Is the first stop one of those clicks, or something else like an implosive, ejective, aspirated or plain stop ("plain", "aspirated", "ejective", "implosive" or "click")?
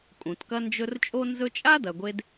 ejective